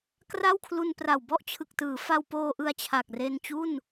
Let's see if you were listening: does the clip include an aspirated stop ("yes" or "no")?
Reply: yes